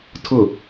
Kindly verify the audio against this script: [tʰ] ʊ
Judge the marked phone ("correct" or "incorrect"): correct